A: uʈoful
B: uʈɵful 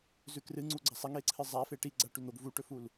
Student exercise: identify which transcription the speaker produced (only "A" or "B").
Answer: B